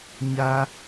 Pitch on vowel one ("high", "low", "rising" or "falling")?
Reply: high